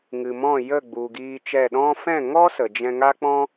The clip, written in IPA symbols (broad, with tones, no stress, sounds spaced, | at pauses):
ŋ ɨ˨ m ɔ̃˦˨ j ə˦˨ ɡ͡b u˨ ɡ iː˧ t͡ʃ ɛ˦˨ ɗ ɔ̃˧ f ɛ̃˦˨ ŋ ɔ˦ s ə˨ d͡ʒ ɛ̃˧ ŋ a˦ k͡p ɔ̃˦